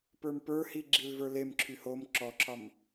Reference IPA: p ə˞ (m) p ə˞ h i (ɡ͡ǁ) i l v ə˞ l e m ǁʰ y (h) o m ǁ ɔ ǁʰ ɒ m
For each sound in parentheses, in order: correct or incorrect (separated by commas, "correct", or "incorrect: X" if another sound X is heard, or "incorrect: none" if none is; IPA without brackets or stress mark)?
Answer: correct, correct, correct